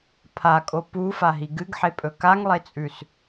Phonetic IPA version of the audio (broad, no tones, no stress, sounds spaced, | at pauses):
pʰ a kʼ o p u f a ɦ i ɡ ɨ ɡ ħ e pʼ ɵ k a ŋ lˠ e t͡sʼ ʉ s